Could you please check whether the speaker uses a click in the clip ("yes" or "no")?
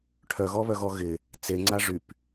yes